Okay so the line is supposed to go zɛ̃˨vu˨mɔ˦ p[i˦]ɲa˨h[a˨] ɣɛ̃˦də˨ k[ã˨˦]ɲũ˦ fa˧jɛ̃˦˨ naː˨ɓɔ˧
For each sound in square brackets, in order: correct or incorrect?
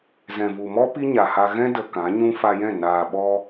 correct, incorrect: a˧, correct

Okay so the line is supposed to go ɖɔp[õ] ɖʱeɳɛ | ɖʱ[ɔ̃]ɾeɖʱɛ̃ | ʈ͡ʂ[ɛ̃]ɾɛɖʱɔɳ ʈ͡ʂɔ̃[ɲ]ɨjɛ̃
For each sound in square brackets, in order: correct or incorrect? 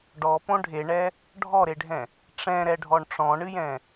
correct, incorrect: ɔ, correct, incorrect: ɳ

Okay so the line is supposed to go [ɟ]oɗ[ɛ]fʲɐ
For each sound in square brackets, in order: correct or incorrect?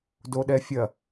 incorrect: d, correct

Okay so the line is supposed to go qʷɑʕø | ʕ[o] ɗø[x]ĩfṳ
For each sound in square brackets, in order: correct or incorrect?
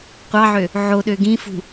correct, incorrect: ɡ

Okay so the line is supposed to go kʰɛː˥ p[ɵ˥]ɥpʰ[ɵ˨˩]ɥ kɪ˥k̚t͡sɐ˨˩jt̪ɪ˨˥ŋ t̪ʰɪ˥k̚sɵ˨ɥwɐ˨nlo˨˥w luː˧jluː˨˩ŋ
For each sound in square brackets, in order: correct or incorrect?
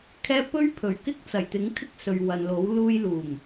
correct, correct

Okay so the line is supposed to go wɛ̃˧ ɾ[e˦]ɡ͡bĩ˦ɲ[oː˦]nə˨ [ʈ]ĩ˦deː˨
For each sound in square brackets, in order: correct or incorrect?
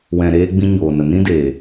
incorrect: eː˦, incorrect: oː˨, incorrect: n

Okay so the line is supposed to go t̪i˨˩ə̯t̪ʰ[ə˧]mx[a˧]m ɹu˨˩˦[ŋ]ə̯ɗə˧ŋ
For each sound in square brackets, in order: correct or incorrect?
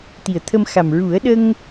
correct, incorrect: a˨˩, incorrect: none

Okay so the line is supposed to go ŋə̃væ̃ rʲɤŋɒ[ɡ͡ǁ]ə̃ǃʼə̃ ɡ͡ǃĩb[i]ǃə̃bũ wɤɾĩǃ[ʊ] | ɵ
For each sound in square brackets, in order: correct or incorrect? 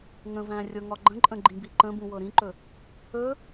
incorrect: ɡ͡ǃ, correct, incorrect: ɵ

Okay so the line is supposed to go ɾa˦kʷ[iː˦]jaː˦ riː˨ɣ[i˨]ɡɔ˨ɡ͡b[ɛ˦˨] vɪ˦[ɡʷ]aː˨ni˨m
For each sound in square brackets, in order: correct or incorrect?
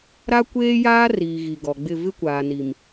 incorrect: eː˦, correct, incorrect: ɪ˦˨, incorrect: kʷ

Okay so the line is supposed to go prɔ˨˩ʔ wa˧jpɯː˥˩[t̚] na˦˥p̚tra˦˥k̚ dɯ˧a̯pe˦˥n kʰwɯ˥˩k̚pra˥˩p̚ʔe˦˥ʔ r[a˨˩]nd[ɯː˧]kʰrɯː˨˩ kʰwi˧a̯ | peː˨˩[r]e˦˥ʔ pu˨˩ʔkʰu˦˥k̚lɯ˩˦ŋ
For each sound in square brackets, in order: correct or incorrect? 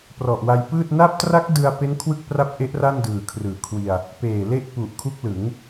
correct, incorrect: a˥˩, incorrect: ɯː˨˩, incorrect: l

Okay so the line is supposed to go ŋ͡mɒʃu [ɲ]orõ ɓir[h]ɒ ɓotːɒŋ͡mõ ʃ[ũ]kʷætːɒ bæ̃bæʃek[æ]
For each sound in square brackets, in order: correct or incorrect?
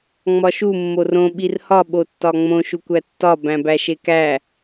incorrect: mː, correct, incorrect: u, correct

